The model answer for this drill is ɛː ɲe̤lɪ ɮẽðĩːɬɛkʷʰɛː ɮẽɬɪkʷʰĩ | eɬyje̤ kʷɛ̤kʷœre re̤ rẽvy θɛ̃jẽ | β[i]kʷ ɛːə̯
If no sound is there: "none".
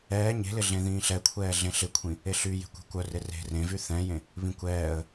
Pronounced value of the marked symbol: ĩ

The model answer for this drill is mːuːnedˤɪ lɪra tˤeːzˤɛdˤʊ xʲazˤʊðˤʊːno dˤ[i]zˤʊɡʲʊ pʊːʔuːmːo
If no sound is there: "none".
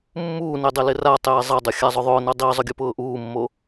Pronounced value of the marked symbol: i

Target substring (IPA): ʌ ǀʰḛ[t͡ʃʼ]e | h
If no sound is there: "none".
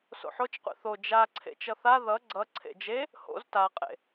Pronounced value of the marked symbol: d͡ʒ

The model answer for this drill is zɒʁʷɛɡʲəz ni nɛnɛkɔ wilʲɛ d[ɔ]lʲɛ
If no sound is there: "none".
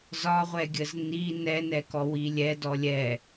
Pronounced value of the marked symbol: ɔ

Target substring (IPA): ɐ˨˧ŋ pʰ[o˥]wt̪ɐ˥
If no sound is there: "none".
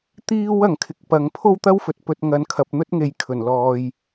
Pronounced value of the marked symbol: o˥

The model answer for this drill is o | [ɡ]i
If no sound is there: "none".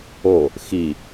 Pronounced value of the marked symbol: x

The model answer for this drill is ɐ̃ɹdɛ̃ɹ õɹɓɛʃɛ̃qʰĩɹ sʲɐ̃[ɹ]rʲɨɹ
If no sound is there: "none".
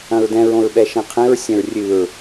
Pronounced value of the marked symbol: ɹ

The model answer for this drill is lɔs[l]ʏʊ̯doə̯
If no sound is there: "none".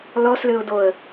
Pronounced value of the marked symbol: l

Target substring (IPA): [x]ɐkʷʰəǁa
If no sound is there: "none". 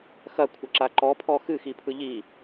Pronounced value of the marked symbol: x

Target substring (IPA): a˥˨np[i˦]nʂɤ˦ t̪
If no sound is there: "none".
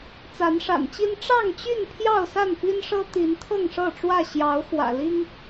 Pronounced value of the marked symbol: i˦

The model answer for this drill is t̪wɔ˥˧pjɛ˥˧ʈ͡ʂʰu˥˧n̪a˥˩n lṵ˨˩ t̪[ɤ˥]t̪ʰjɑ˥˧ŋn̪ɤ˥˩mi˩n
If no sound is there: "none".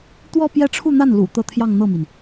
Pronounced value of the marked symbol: ɤ˥˧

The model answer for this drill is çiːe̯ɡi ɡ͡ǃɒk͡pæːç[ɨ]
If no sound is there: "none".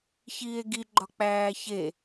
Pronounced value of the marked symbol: e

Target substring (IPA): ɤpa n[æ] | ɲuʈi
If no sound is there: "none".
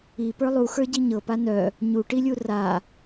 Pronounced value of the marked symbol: œ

